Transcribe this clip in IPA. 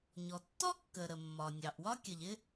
ɲ ɔ˩ tː ɔ˥ kː ə˩ ɾ ə˩ mː ɒ˩ nʲ ɑ˩ ʔ w ɒ˥ kʲ ə˩ ʎ ɪ˥

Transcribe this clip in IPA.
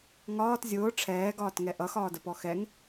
ŋ ɒː t zʲ ʊː ʈ͡ʂʰ ɛː ɡ ɒː t ŋ ɛ ʔ ʌ x ɒː d ə p ɔ x ɛ ŋ

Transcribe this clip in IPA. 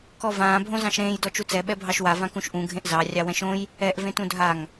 k ɔ v ãː bʱ õ z ɑ̃ ʃ ɾ ẽː j d ɔ t͡ʃ u t͡s ɛ ɓ ɛ bʱ ɑ ʃ w a v ã k ũ ʃ ʔ ũ ɡʱ ẽ ʔ z ɑ rʲ ɑ w ɛ̃ ʃ õ j | ɛ ʔ v ẽ t ũ dʱ a ŋ

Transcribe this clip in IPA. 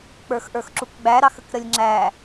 k͡p ə˞ x ʔ ə˞ x ǁ u k ɡ͡b æ ɾ ɑ x ə k ɾ ə lʲ ŋ͡ǁ æ

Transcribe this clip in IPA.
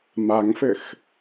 m a ŋ f ɘ x

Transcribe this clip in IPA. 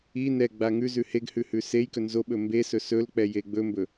i n ɛ ɡ͡b a ŋ ʉ z ʉ h e ɡ h ʉ h ʉ s e j k ɵ n z o ɓ ɵ m b e s ɵ s ɵ l k͡p ɛ j e ɡ͡b ɵ m b ɵ

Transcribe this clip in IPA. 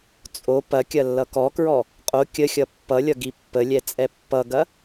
t͡sʼ o p ɐ kʲ ɐ lː ʌ k ɔ k ɹ ɔ | qʼ o kʲ ə xʲ ʌ pː ʌ lʲ ʌ ɡ i pː ə lʲ ɛ t͡sʼ ɛ pː ʌ ɡ ɐ

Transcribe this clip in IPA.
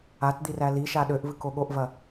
a t d̪ i r æ l i ʃ a ɗ ø ʔ v ɨ k o ɠ o ʔ v ɐ

